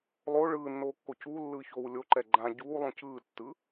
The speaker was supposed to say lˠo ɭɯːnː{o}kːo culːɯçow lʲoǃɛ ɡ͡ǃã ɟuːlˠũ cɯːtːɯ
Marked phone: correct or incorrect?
incorrect